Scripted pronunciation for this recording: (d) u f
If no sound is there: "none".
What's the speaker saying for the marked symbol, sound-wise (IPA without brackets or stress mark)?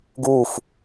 ɡ